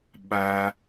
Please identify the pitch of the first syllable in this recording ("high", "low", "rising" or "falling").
high